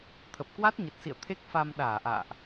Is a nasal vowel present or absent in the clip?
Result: absent